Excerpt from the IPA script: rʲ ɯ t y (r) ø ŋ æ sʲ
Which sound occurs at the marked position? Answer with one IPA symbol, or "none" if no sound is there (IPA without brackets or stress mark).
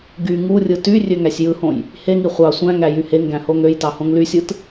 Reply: rʲ